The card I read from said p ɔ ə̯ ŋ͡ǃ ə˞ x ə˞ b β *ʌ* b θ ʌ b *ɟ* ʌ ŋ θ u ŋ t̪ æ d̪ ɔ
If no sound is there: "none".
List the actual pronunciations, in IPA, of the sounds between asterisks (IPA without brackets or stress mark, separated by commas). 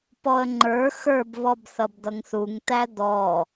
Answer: ɔ, d̪